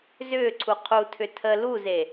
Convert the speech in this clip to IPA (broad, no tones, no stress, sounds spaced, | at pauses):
z ʏː ǀʰ u qʰ u tʰ ʏ tʰ ə l u z e